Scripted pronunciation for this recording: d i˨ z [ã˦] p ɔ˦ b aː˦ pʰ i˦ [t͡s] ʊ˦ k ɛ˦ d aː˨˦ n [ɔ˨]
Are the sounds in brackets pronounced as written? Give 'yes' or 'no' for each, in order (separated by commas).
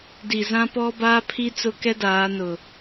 yes, yes, no